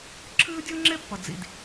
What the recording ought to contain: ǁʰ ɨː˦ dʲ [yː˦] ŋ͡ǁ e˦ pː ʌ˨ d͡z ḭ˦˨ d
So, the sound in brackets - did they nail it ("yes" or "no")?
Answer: no